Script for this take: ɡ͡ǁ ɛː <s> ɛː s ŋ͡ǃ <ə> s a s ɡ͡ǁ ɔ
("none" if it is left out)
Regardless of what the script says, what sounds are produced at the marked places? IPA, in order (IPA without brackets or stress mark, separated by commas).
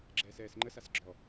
s, ə